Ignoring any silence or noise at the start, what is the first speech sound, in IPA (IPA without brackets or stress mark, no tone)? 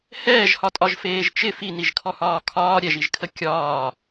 h